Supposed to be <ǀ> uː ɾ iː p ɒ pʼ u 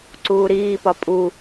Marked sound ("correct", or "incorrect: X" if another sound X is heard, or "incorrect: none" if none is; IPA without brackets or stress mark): correct